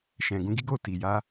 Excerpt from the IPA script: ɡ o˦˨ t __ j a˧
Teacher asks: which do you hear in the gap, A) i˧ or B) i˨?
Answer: B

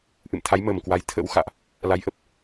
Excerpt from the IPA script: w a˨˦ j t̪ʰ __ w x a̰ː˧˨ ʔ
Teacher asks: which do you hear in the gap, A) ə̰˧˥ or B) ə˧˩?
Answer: A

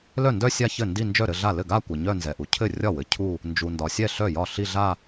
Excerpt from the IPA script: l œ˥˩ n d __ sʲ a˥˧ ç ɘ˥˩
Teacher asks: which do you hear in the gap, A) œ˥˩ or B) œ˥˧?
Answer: B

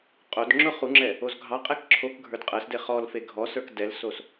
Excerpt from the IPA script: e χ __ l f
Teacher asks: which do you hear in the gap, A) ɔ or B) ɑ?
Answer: A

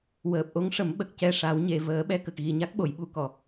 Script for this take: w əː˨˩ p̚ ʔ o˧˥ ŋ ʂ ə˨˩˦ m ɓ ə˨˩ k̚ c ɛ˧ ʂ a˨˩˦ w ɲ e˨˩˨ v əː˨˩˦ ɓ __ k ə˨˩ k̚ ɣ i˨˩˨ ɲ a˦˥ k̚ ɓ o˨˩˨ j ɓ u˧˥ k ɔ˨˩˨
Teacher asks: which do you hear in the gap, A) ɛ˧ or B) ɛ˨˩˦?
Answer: A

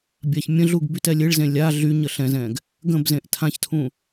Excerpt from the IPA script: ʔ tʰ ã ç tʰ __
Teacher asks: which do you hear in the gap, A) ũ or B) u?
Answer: A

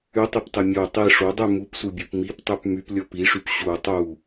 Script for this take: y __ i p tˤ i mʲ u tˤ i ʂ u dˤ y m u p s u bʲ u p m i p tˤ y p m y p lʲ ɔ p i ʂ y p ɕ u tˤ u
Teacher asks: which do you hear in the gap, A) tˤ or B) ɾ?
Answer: A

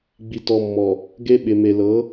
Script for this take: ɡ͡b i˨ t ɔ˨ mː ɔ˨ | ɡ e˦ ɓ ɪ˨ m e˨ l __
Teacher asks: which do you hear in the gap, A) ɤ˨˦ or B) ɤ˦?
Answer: A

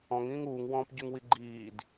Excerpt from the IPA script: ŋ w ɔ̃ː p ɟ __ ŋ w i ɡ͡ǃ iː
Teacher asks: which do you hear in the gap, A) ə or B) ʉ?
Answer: B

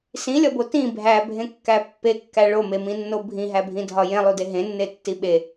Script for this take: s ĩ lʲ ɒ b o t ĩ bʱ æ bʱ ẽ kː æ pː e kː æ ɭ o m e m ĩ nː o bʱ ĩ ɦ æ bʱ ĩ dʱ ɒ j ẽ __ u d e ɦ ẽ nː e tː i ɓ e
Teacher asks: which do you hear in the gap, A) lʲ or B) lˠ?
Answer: B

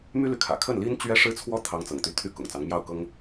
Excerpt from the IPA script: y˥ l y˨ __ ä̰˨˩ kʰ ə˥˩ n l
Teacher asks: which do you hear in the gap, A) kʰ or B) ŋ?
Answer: A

